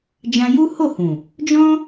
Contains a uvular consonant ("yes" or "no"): no